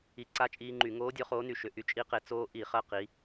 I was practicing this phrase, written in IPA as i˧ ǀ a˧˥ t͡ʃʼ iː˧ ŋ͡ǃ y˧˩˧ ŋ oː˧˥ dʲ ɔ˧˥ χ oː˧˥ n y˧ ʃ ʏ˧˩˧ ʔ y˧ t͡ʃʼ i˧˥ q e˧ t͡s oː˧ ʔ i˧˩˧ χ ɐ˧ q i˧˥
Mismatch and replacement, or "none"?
none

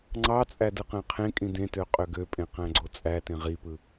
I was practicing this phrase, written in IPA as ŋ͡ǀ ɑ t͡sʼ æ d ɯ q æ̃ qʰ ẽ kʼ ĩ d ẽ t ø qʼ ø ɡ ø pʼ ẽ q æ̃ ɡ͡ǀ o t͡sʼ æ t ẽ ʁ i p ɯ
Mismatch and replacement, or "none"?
none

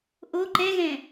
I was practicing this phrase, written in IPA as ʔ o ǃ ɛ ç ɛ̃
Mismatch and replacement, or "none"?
ç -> ɣ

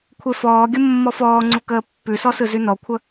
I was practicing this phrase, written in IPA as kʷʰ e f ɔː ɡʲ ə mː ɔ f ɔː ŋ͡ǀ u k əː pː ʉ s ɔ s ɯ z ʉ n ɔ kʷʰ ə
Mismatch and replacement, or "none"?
none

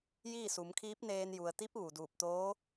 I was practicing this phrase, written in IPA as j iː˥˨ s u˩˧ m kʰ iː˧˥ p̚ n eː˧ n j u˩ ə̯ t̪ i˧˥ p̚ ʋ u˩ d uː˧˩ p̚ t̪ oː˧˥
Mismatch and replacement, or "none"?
none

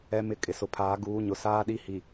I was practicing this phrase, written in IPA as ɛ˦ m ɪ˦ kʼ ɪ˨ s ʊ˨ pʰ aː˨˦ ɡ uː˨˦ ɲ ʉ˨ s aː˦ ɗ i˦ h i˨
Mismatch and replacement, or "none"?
ʉ˨ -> ʊ˨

